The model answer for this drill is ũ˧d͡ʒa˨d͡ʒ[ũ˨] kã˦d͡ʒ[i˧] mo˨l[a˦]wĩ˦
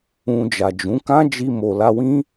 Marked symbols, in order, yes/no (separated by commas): no, yes, no